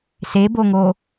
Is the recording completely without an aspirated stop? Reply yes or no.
yes